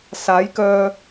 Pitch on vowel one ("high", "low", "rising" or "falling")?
rising